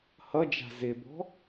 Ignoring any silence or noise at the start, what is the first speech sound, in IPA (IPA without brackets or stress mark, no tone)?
h